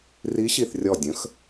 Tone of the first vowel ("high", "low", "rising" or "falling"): rising